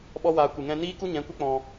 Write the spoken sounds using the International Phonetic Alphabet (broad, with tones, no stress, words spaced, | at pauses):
ɓɔ˦waː˧ kʷɨ˨ŋɛ̃˧niː˦ku˦ ɲɛ̃˨˦kʷe˦k͡pɔ̃˧